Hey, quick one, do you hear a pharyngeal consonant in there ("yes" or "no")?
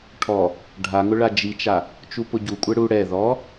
no